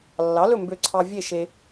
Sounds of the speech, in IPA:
lːɑ˩˥lɵ˥˨ mbø˧ǀʰɑ˧ vʲe˥˨ʃe˧

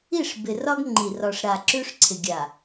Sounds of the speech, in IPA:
i˦˨ʂbɪ˨rɒ˦ɡ ŋ͡ǃi˨r ɒ˨ʂɾa˨ ǁʉ˦ʂǀʰɪ˨ ɡʲa˨

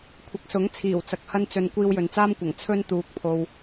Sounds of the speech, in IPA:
kʷʰɐ˨k̚sʊ˨˥ŋ t͡sʰiː˨˩wt͡sɐ˨k̚ hɐ˥nt͡sɵ˧n kʷiː˧wjɵ˨nt͡saː˥mkʷɐ˨˩ŋ t͡sʰɵ˥n t̪uː˧k̚pʰo˧w

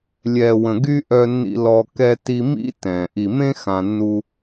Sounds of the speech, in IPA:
lʲɛː˨wə̃˨ ɡy˧ ʔœ˧nːḭ˧ lɔ˧kɛ˦ ti˧mḭ˦ tɛ̃˨ ʔi˨mẽ˦ xã˧nːu˦

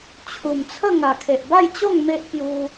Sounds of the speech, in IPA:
t͡ɕʰu˨˩mt͡sʰə˥˧ ŋa˨˩kʰe˨ʔba˥˧jt͡ɕo˥˧ŋ me˦ʔpju˧

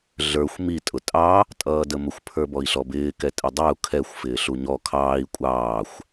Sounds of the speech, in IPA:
ɮə˞xʷ mi tʼʊtʼɑ | tʼʌːdəmʊxʷ pʰə˞bɔi̯ɬɔbɪː kɛtʼɪdˤɛu̯ kʰɛxʷ fɪːɬuɲɔ kʰɑːi̯ kʷʼɑːxʷ

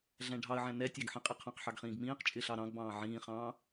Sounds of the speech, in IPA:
ɮæ̃ɖʱɑə̯ʕæ̃ nɛtʲɑɡ ħĩqʼiqʰɑ̃qħɑɡ χĩːɡmĩːqt͡ʃʼɪːɬ ɑɾɑ̃ɡbɑ̃ː ʕĩːχɑ̃ː

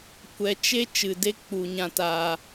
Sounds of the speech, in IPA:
kʷɛ˨t͡ʃe˦ t͡ʃɨ˨de˦k͡pu˨ ɲã˨taː˨

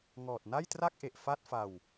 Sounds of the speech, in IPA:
ŋɔː˨˩t̚na˥˩jtra˥˩k̚ʔe˨˩ʔ fa˥˩t̚fa˧w

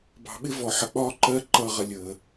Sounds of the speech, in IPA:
bɑ̤˨ɓɪ˦ vɔ˨ħə˨k͡pɒː˦ ǃɜ˦ǃʌː˦˨ ʁə˧ lʲəː˨

